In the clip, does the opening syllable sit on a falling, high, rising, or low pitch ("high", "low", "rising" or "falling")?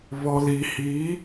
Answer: low